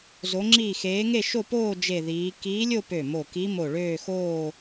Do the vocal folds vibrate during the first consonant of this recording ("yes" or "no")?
yes